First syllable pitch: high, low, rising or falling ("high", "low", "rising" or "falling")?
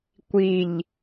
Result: low